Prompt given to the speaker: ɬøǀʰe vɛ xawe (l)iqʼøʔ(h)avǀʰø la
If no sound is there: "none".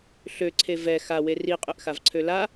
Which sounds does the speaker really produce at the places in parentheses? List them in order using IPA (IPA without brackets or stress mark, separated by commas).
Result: r, x